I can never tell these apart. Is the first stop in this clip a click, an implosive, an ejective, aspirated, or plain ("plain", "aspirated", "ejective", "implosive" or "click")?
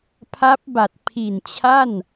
aspirated